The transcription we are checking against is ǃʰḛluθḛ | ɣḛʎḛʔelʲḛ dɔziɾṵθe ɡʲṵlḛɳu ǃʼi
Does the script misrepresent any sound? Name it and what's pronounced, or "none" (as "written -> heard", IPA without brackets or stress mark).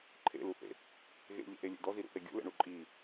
none